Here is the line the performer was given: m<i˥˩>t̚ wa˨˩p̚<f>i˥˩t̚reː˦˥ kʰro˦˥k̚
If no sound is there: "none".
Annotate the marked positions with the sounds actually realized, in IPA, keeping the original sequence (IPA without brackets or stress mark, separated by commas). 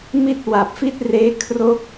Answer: i˥˩, f